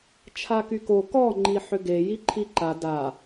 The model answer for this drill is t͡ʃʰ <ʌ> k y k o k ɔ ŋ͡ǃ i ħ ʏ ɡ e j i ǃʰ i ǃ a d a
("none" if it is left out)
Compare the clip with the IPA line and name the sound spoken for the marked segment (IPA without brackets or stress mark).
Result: a